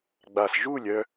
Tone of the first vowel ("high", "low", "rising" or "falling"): low